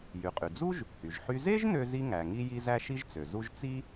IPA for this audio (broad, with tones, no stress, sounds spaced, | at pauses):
j y˩ qʼ y˩ d͡z u˥ ʒ | h y˩ ʒ ħ y˥ z e˥ ʒ n ø˥ z i˥ ŋ æ˩ ŋ i˥ j i˥ z æ˥ ʃ i˥ ʒ t͡s ø˩ z u˥ ʒ t͡s i˥